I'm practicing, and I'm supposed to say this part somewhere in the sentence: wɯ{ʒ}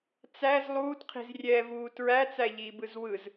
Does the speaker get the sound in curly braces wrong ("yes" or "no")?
yes